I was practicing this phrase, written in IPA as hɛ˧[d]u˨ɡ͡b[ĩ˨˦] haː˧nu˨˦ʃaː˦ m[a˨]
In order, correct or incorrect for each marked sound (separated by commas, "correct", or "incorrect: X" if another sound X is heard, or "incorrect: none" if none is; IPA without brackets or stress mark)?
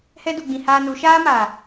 correct, incorrect: ĩ˨, correct